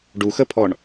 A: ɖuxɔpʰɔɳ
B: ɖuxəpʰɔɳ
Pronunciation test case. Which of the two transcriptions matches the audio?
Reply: B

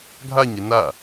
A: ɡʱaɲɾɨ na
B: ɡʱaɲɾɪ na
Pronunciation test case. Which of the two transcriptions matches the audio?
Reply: B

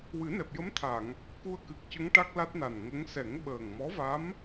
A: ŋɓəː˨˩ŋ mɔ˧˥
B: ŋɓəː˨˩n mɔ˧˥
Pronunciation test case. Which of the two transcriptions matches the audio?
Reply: A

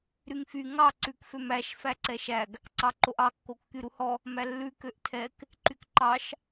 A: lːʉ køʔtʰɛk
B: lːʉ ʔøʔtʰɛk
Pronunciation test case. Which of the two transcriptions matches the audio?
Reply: A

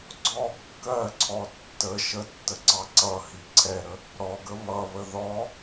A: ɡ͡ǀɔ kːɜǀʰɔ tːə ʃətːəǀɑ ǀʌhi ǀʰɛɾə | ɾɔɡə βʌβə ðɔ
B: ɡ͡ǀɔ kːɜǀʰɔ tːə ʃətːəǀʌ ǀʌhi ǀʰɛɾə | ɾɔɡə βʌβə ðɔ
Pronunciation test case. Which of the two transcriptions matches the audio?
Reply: A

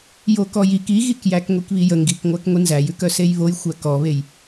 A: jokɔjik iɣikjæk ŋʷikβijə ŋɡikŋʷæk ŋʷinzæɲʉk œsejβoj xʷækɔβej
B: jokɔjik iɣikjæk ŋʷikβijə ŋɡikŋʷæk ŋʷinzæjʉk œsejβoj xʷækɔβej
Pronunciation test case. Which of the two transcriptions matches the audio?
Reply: B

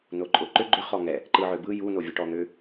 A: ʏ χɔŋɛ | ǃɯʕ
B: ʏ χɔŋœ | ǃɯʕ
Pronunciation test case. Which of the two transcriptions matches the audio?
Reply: A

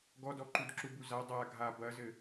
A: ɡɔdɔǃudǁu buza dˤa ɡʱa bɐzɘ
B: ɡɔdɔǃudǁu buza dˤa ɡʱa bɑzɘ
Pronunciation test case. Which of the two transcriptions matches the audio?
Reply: A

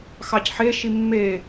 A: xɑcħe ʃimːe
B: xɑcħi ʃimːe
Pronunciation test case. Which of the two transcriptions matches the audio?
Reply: A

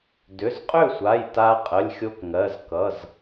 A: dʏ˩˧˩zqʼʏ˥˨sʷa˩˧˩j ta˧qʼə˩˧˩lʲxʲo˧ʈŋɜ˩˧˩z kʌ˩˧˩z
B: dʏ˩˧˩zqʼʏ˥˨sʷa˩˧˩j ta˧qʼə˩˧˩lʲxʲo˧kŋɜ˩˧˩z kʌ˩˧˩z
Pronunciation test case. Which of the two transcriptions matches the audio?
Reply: B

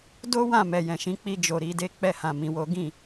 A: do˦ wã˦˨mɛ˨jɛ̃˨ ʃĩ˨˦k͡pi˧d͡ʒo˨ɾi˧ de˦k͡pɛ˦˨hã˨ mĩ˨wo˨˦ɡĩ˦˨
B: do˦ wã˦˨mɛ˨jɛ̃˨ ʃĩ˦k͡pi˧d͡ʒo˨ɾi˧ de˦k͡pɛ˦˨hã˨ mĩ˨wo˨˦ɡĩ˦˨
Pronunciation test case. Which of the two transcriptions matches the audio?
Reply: A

